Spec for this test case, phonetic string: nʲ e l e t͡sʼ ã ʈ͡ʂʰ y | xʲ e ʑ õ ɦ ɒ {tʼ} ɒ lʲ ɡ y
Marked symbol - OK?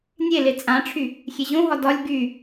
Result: no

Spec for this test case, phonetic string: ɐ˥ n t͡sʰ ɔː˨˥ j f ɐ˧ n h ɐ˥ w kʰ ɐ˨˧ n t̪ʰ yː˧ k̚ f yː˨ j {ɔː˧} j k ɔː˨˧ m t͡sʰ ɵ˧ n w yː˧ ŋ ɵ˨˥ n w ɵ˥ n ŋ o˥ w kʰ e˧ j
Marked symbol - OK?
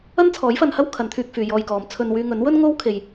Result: yes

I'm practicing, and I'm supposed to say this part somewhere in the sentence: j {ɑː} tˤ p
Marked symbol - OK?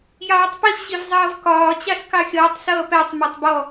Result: yes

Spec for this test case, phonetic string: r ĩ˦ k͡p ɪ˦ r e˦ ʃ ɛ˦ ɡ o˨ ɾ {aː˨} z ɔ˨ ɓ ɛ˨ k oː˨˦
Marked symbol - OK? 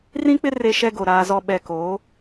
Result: yes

